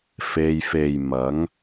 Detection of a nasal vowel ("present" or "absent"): absent